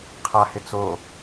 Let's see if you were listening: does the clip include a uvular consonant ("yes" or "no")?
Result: yes